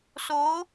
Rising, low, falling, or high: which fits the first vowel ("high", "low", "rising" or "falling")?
rising